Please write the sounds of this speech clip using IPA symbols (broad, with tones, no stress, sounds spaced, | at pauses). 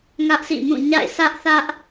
ŋ ä˦ ʔ sʰ ḭ˦˨ m ũ˦˨ ɲ a̰˦˨ ɪ̯ s ä˦ ʔ θ ä˦ ʔ